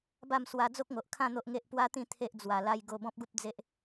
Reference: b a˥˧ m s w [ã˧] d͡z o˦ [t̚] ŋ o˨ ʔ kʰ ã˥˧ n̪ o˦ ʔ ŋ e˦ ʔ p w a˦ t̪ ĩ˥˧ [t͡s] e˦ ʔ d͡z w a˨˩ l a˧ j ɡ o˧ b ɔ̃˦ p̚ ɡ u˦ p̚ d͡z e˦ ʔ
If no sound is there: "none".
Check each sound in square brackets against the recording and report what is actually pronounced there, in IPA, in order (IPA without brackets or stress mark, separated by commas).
a˧, k̚, t̪ʰ